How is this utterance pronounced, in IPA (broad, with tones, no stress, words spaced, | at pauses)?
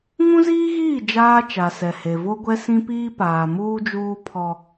ŋũ˦ziː˦ɣiː˦˨ d͡ʒaː˦t͡ʃa˨ sɛ˨he˨ vo˦ɡʷɛ˦ sĩ˦piː˦paː˨ muː˦d͡ʒuː˦ pʰɔ˦